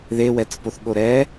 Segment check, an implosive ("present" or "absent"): present